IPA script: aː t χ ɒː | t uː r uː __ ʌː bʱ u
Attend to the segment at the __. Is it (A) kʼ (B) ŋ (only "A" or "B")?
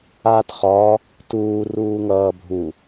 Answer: B